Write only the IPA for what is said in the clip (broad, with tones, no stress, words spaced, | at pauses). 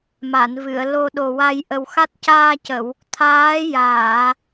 ma˨˩˨nvɨ˨˩˨ə̯ lo˨˩ ɗo˨˩wa˧j ʔə˨˩wxa˦˥t̚ caː˧cə˨˩˨w | t̪ʰaː˧˥jaː˨˩˨